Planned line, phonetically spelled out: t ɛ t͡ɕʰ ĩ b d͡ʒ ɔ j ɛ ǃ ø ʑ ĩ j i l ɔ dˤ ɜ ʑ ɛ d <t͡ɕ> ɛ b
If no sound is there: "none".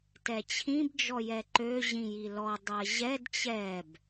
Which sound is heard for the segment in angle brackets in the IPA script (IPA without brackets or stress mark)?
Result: t͡ɕ